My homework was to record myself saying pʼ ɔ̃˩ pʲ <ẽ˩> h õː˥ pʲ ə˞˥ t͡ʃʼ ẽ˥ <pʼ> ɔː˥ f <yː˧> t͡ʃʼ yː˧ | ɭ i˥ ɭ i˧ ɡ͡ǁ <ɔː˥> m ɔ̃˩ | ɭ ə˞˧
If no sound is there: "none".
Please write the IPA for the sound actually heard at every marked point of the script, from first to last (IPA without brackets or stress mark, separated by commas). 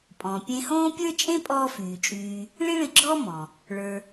ẽ˧, pʼ, yː˩, ɔː˥